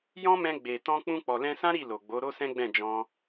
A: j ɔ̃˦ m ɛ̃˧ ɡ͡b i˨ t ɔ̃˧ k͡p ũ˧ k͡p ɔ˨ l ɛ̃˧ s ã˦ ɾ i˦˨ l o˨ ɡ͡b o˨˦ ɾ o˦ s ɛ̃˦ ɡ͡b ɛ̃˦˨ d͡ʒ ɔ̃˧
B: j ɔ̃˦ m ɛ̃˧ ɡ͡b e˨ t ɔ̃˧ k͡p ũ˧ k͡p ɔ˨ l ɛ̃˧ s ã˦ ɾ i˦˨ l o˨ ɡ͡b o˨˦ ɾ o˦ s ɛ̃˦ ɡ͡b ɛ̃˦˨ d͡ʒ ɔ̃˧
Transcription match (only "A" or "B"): B